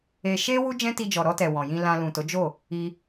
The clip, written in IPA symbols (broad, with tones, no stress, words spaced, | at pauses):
e˧ ʃe˦ wu˦d͡ʒɛ̃˦ti˧d͡ʒɔ˨ ɾɔ˧tɛ˨ wɔ̃˨jĩ˧lã˧ lũ˨to˨˦ d͡ʒo˦˨ | i˧